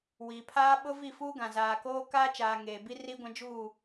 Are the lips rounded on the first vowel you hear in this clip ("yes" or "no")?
no